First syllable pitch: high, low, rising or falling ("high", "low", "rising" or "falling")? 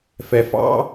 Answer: low